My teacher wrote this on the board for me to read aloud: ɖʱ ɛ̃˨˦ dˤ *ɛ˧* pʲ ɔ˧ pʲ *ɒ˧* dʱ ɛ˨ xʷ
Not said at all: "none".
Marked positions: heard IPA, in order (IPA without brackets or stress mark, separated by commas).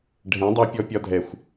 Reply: ɛ˧, ɒ˧